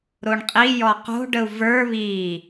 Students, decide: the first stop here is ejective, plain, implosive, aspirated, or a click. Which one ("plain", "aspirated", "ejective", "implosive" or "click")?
ejective